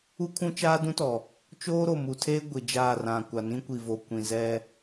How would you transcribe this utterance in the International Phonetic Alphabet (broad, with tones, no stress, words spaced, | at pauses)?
u˦kʰũ˦ t͡ʃaː˦dũ˦tɔ˨ | t͡ʃoː˦ɾo˨mu˨tʰeː˦ ɡʷi˨d͡ʒaː˦˨rã˨ kʷa˨nĩ˦kʷi˨vo˨ kʷĩ˨zɛ˦